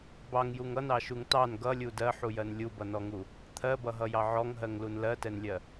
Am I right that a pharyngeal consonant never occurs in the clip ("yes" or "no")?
no